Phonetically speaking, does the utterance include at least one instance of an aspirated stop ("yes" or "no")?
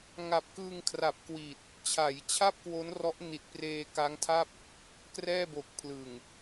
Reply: yes